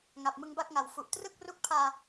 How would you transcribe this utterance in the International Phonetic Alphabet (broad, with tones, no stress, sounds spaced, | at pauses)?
ŋ a˨˩ p̚ m ɯ˧ ŋ b a˥˩ k̚ ŋ a˨˩ w f u˨˩ ʔ t r ɯ˥˩ k̚ r u˦˥ k̚ pʰ aː˧